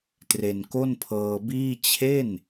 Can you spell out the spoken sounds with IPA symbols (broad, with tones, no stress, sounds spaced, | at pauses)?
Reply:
t r e˧ n k o˥˩ n pʰ ɤː˧ b iː˥˩ t͡ɕʰ e˥˩ n